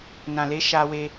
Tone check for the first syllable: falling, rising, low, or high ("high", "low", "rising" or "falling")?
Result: low